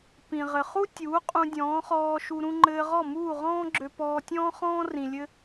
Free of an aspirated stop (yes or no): yes